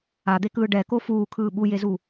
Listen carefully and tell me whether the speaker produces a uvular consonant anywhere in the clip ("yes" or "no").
no